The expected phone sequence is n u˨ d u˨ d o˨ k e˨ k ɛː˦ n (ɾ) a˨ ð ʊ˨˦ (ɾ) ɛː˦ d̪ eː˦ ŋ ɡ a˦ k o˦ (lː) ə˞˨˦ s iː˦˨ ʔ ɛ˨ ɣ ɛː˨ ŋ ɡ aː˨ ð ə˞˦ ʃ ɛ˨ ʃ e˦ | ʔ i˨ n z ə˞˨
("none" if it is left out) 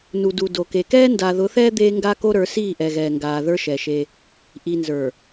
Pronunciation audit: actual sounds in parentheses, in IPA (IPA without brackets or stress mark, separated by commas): d, θ, ɾ